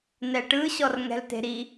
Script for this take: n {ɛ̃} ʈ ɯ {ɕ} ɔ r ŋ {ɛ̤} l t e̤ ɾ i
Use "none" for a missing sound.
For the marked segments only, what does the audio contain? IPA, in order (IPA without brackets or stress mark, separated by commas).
ɛ, ɕ, ɛ̤